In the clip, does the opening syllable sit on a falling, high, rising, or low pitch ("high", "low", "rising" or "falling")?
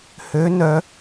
rising